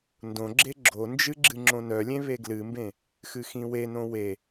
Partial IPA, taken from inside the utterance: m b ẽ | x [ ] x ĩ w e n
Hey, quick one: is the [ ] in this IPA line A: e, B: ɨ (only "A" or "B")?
B